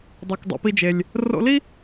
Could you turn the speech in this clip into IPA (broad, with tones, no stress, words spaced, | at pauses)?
dˤu˩kdˤṵ˩pi˧d͡ʒe˩lʲ | ro̰˧li˥